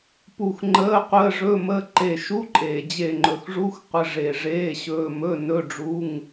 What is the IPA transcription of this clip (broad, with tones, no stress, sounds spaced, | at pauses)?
p u˧˩ x ŋ͡ǃ əː˧˥˧ qʷ əː˧˥˧ ʐ ɵ˧˥˧ m ə˧˥˧ ǃ e˧˩ ʃ u˧˥˧ ǃʼ eː˩ d͡ʑ e˧˩ ŋ͡ǃ ɵ˩ x ʐ u˧˥˧ x qʷ ə˧˥˧ ʐ e˧˩ ʐ eː˧˥˧ ɕ ɵː˧˥˧ m ɵ˧˥˧ n ɵ˧˥˧ ɖ͡ʐ u˧˥˧ ŋ